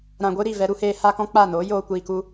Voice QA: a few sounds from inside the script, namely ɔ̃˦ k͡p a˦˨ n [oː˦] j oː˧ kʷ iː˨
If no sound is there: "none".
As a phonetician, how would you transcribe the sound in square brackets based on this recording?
oː˨˦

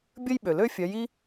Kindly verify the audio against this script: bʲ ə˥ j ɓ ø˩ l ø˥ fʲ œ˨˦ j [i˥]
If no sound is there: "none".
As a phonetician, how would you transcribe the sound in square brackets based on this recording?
i˥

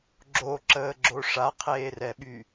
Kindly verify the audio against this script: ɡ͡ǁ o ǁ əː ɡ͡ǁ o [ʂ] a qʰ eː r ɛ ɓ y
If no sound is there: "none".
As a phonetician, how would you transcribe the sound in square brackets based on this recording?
ʂ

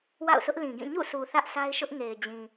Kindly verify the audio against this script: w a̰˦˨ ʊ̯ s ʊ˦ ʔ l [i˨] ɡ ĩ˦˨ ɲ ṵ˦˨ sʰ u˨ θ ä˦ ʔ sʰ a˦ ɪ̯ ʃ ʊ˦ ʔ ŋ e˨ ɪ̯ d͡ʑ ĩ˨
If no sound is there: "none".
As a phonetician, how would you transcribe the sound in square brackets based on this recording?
ĩ˨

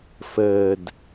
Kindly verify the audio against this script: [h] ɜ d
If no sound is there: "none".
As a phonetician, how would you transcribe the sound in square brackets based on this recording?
f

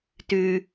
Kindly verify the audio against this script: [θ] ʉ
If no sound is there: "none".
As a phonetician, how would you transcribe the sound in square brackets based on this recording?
t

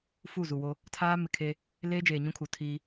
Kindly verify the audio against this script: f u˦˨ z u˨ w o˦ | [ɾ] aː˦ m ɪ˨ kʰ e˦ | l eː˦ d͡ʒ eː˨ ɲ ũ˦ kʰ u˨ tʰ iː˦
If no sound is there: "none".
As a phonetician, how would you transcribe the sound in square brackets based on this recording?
tʰ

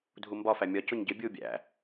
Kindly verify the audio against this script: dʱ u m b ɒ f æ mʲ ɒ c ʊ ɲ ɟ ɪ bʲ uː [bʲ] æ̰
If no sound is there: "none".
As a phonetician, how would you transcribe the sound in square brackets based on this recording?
bʲ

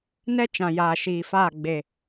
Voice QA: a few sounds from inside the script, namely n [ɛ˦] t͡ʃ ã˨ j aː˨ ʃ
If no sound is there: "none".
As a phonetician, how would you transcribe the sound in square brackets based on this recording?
ɛ˦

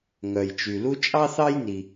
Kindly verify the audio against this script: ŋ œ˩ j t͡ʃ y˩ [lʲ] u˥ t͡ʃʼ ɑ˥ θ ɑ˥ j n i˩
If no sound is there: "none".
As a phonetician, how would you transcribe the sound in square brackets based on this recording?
l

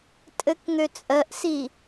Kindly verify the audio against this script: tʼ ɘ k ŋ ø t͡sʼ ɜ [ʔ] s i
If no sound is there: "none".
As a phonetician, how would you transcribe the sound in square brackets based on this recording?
ʔ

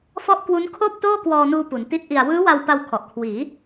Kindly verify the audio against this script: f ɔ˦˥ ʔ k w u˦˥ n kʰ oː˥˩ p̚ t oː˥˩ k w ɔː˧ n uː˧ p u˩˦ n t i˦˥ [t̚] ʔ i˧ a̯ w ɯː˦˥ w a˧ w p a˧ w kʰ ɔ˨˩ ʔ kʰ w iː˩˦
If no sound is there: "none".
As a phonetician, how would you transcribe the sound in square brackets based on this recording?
t̚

